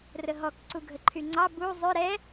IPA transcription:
r ə ɦ ɔ k ǀ u ɡʱ ə ǃʰ y ŋ͡ǀ ɑ b u zˤ ʏ ɾ ɛ

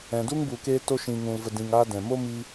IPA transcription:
ɛ̃˨ d u˦ ŋ b u˨ k eː˧ t o˧ ʃ ĩ˨ ŋ ũ˨ l v ə˨ d ĩ˨ ŋ aː˧ d ɛ̃˨ m o˦ m i˧

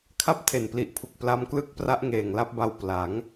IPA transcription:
kʰ a˥˩ p̚ tʰ e˨˩ n p l i˨˩ ʔ pʰ u˨˩ k̚ p l a˦˥ m k l ɯ˥˩ k̚ p r a˦˥ ʔ ŋ eː˨˩ ŋ l a˥˩ p̚ b a˧ w p l a˩˦ ŋ

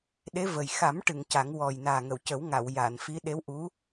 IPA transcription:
ɗ e˧˥ v ə˨˩ j x a˨˩˦ m ʈ ɨ˨˩˨ ŋ c a˨˩˦ ŋ w ɔ˨˩ j n aː˨˩ ŋ ə˨˩˨ w c ə˨˩˦ w ŋ a˨˩˨ w j a˨˩˨ n f i˧˥ ɗ e˧˥ w ʔ u˧˥

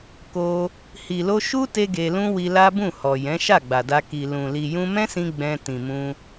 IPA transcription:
k o˧ | h i˨ l o˧ ʃ u˦ t e˧ ɡ e˧ l ũ˦ w i˧ l a˦ b ũ˦˨ h ɔ˨ j ɛ̃˨˦ ʃ a˦˨ ɡ͡b a˨ d a˧ k i˨ l ũ˨ l i˨ j ũ˧ m ɛ̃˦ s ĩ˧ ɡ͡b ɛ̃˧ t ĩ˨ m ũ˧

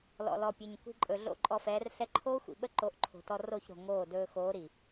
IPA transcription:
l ɔ̰˨ l ɔ˨ pʲ ɵ˨ ɲ kʷ i̤˧ ǃʼ ɵ˨ ɮ o̰˦˨ ǃʼ ɔ˧ f ɛː˨˦ r ɬ ɛ˧ ǃʰ oː˦ xʷ ḭ˨ ɓ ə˦ ǃ o˨˦ ʔ ǃʰ o̤˨ t ɔ˧ r o˦˨ ç ɾ o̤˨ ŋ oː˦˨ d ɵː˧ x oː˨˦ ɾ i˨

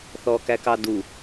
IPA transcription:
θ ɔː k æ k ɑ d u

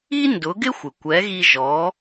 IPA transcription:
i˥ n d ʊ˩˥ ɡ ɪ˥ xʷ ɪ˩ kʷ ɛ˩˥ ɣ i˧ ʒ ɔ˩˥

